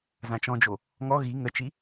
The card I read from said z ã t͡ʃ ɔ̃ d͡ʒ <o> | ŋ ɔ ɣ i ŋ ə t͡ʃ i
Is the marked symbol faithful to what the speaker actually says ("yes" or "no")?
yes